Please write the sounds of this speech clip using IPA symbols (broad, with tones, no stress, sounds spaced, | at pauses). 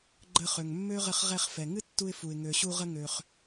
ɡ͡ǃ ə˧ χ ø˩ ŋ mː ø˥ ʁ ɘ˧ χ ʁ ɛ˧ χ f ɛ˩ ŋ ɨ˥ tː u˧ ɪ̯ f u˩ ɪ̯ ŋ ø˩ ɕ u˧ ʁ ə˧ ŋ ø˩ χ